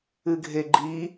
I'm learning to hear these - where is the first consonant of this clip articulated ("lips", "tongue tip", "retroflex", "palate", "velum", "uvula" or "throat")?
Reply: velum